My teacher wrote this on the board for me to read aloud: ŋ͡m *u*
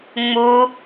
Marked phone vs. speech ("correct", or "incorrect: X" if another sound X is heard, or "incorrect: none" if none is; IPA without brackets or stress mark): correct